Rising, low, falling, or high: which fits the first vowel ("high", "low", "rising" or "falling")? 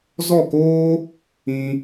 falling